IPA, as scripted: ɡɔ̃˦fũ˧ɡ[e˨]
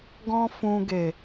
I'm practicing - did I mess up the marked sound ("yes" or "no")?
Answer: no